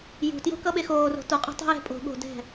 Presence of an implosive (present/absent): present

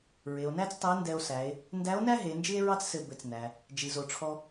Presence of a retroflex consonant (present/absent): present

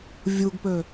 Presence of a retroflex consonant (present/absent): absent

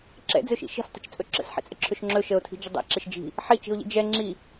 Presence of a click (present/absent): present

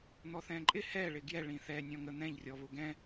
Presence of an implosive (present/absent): absent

